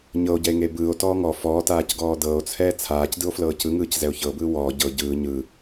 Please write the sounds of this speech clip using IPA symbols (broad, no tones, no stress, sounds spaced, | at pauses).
ɲ ɤ o̯ ɟ ɛ e̯ ŋ e b ɯː o̯ t ɔː ŋ ɔ f ɔː t aː c ɡ ɔː d ɤː o̯ t͡sʰ ɛː t͡sʰ aː c d ɯ o̯ f l ɤː c ɯ ŋ ɯː c z ɛ o̯ ç ɤ b ɯː w ɔː ɟ ɤ ɟ ɯː ɲ ɯ